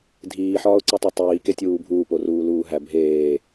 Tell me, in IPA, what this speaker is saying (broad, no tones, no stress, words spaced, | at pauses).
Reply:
dʱiːħɒːʊ̯ǀitˤo tˤiːketʲuː bʱuːporuːluː ɦæ bʱeː